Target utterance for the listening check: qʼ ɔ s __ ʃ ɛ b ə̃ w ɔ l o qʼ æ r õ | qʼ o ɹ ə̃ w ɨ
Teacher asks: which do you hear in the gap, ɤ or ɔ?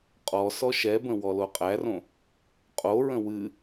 ɔ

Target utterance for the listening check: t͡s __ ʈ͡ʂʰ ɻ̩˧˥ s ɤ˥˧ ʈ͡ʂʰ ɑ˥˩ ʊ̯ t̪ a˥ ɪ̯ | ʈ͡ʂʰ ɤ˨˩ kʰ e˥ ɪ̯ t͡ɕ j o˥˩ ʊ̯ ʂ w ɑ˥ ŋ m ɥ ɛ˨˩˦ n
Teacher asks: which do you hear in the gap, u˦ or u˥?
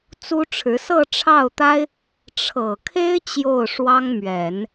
u˥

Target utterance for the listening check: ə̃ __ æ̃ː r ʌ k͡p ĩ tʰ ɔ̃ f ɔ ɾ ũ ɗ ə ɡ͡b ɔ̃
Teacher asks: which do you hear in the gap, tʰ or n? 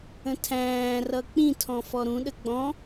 tʰ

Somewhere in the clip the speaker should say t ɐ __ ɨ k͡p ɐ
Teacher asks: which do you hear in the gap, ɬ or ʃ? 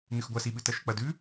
ʃ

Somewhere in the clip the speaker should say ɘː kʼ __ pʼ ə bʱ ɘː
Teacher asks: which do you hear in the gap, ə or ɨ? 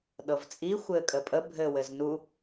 ə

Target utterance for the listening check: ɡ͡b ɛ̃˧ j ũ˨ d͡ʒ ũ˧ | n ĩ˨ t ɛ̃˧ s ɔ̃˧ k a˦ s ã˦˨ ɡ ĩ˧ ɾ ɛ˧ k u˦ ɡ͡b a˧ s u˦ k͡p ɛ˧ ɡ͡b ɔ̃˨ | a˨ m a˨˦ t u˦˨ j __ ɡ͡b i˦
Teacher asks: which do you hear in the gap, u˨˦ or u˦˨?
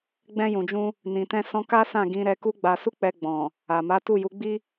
u˨˦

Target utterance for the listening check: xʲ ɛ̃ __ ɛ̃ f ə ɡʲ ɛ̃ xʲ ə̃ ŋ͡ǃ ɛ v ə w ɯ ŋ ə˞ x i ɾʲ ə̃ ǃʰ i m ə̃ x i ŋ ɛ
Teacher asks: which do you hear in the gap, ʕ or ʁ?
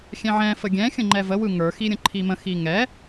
ʕ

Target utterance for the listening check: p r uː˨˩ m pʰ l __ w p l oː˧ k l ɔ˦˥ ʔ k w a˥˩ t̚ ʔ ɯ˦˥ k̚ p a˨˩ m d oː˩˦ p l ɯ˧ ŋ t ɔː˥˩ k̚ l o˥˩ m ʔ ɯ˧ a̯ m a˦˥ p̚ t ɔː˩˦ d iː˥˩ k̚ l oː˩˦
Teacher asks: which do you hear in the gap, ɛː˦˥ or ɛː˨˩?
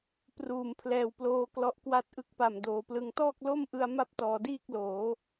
ɛː˨˩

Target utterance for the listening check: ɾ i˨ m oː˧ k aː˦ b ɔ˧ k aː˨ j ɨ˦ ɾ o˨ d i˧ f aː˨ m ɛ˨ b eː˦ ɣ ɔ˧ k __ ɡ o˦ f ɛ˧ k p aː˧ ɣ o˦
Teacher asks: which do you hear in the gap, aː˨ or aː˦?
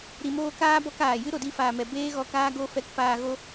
aː˦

